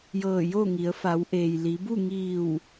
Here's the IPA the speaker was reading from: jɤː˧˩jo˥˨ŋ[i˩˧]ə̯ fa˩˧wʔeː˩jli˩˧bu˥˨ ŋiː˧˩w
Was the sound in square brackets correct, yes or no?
yes